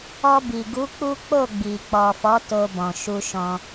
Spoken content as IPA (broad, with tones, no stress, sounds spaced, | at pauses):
ɔ˧ b i˨ ɡ u˨˦ k͡p u˦ k͡p o˦˨ ɡ͡b i˨ k͡p ɔ˨ f ɔ˨˦ t o˧ b ɔ̃˨ ʃ u˧ ʃ ɔ̃˧